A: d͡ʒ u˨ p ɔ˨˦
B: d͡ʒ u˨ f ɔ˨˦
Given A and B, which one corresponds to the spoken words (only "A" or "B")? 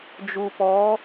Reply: A